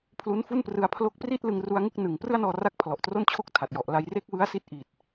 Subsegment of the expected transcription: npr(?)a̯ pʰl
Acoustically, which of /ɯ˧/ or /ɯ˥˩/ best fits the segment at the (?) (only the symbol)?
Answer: ɯ˧